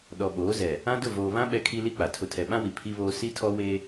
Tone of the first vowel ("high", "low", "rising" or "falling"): low